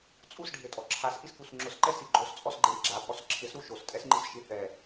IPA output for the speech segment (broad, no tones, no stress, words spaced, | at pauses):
t͡sʼusɖʱetʼɔ ǁʰasʔiskus ŋ͡ǁʊsǃɛsi ɡ͡ǃost͡sʼɔsɡ͡ǃeɾi ɡ͡ǁapʼɔs ǁʰɪsɾu ʃostʼɛsŋ͡ǃisʃi θɛ